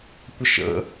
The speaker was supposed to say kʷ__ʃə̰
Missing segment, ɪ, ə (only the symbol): ə